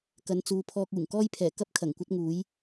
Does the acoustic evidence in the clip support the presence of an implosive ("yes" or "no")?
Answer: no